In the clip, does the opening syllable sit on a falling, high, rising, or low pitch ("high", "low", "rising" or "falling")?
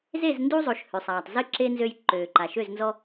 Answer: falling